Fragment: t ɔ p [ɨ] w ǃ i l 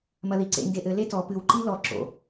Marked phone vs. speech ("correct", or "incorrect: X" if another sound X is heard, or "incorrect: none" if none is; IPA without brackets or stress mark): correct